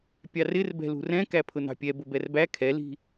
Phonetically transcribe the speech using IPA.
pʲ ɑ r ɪ r b ɛ̤ l ṳ r ɛ̃ k æ pʰ ʊ n ɑ̤ pʲ ɛ b ʊ b ɛ r b æ kʰ ɛ l i̤

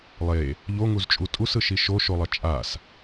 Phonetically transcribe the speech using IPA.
lˠ e | ʎ o ŋ u z t͡ʃʼ u tʼ u s ɯ ʃ i ʃ o ʃ o lˠ ʌ t͡ʃʼ a s

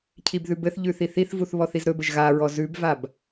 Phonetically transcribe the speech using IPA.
cʰ i b ð ʉ b ɘ θ ʎ ʉ θ i θ i θ v u θ β ɔ θ i z ɾ ɵ b ɘ ʒ ɣ a ɹ ɔ z ʉ b v a b

